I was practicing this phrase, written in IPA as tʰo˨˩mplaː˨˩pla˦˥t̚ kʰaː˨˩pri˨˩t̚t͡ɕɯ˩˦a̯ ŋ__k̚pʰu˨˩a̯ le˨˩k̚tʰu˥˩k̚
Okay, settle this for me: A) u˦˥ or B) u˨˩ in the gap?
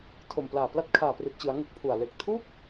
A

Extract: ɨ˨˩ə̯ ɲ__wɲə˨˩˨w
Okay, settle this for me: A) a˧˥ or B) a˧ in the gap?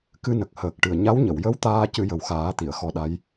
A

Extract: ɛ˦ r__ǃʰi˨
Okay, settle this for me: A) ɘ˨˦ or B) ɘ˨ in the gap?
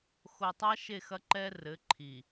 A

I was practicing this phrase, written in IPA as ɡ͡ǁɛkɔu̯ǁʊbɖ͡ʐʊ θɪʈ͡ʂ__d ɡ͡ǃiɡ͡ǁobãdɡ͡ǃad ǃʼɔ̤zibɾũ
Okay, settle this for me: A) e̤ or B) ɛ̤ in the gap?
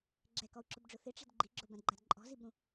B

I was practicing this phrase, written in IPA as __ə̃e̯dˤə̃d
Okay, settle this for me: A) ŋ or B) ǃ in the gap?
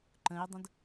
B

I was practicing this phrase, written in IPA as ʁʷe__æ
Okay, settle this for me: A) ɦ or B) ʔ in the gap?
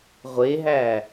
A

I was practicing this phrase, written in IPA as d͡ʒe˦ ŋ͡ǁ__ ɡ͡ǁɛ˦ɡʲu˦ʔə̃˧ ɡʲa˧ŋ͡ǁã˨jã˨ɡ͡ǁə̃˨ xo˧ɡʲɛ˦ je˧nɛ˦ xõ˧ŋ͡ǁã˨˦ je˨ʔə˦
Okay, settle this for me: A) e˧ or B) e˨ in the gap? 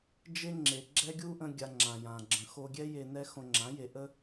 B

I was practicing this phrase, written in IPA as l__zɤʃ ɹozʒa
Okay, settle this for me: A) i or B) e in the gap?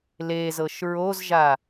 B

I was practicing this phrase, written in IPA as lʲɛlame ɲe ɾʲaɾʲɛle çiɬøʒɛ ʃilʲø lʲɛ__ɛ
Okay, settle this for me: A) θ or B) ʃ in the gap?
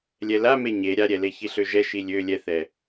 A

